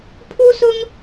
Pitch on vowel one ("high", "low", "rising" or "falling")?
high